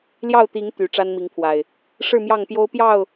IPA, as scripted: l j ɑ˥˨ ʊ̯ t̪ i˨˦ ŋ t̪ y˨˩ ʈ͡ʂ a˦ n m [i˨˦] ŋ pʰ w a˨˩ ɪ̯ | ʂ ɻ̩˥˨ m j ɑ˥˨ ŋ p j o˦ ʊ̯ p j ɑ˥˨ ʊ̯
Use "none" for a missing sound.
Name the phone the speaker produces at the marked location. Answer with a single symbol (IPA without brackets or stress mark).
i˨˦